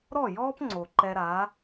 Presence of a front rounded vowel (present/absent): absent